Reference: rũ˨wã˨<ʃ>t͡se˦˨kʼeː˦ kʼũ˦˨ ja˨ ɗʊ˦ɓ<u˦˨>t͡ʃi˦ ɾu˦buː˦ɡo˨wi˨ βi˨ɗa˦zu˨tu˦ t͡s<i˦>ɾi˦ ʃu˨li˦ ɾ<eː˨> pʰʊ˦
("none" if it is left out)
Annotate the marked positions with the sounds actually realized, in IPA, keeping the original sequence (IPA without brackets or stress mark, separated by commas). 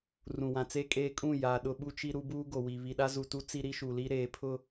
none, u˦, i˦, eː˨˦